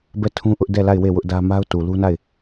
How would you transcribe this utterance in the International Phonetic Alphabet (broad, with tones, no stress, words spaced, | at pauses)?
bɛ˦˨tʰũ˦ʔʊ˦ʔ dɛ˦˨la˦˨ɪ̯ we˦˨wʊ˦ʔdä˦ ma˦ʊ̯tu˨lu˦na˦˨ɪ̯